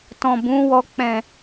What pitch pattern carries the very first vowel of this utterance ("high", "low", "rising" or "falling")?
low